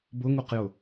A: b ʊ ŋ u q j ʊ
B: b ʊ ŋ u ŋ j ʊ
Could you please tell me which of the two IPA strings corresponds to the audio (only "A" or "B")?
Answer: A